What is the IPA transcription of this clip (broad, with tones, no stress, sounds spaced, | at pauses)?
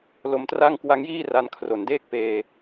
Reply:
l o˧ m t r a˥˩ ŋ k w a˦˥ ŋ j iː˥˩ r a˧ n kʰ r o˨˩ n d eː˥˩ k̚ p eː˧